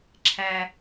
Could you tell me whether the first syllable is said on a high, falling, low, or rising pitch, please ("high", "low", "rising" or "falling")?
high